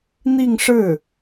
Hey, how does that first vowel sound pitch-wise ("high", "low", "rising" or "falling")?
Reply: falling